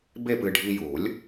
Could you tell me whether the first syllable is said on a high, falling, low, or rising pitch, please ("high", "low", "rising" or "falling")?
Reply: falling